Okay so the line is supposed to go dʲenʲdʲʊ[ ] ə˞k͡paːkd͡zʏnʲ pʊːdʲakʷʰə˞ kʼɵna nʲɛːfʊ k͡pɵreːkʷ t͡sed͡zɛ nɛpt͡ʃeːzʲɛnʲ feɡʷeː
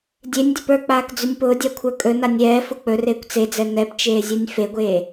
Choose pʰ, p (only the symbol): p